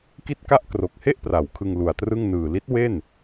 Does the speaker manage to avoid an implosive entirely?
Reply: yes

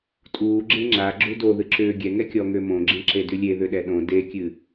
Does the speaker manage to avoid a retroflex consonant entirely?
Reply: yes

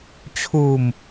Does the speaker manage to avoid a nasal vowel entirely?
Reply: yes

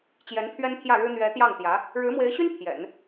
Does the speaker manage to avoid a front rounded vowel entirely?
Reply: no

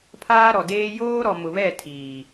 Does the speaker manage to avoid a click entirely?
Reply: yes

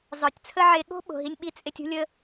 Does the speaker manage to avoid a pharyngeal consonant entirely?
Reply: no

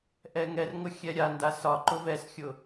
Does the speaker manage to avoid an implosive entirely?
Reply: yes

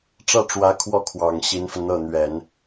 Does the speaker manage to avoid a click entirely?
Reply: yes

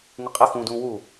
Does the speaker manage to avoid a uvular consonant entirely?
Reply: no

